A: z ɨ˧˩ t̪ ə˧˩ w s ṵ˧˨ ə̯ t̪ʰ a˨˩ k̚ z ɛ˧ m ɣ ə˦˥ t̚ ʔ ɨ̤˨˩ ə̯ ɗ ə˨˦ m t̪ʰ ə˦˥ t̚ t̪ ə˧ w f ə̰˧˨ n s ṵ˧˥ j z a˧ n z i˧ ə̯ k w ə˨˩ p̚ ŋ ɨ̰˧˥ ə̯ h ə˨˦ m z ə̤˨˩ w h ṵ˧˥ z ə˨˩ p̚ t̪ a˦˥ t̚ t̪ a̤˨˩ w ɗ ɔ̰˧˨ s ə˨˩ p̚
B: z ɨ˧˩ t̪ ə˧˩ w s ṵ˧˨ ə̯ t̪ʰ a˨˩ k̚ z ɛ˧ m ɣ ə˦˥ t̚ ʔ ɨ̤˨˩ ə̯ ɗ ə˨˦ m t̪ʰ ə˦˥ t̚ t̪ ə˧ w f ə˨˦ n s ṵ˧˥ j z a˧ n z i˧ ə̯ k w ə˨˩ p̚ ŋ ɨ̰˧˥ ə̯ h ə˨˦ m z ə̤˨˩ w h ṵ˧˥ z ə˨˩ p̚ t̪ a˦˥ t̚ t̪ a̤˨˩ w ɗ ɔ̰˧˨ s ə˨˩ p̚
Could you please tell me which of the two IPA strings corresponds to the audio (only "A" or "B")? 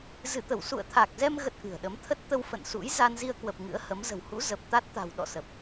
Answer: A